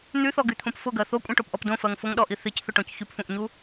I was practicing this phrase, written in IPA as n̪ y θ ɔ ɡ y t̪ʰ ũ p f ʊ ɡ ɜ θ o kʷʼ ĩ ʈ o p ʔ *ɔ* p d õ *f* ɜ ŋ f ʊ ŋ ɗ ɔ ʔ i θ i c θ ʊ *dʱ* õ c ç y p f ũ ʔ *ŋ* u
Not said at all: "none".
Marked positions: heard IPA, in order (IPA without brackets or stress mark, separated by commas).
ɔ, f, ʈ, ɲ